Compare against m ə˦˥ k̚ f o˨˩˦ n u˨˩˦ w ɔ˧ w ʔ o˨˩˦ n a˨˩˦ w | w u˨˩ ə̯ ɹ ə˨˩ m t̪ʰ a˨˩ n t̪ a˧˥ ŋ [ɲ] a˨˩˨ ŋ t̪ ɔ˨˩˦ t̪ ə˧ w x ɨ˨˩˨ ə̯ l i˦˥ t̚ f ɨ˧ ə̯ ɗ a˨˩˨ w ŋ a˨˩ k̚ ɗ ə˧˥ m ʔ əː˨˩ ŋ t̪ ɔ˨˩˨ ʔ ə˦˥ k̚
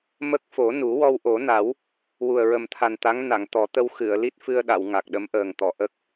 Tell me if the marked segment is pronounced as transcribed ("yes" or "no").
no